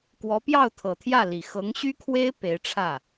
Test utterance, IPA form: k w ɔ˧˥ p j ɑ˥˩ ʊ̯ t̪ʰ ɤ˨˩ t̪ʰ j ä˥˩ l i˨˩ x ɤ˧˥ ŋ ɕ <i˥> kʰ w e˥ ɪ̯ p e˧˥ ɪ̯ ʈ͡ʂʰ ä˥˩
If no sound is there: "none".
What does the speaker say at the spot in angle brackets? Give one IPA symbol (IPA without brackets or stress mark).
y˥